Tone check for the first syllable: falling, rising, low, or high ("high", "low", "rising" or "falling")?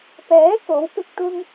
rising